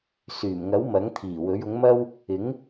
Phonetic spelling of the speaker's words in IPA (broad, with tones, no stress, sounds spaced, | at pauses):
s yː˨˩ m ŋ ɐ˨˥ w m ɐ˨˥ ŋ t̪ʰ iː˨˩ w ɵ˨˥ ɥ ʊ˨˥ ŋ m ɐ˥ w | ɪ˨˥ ŋ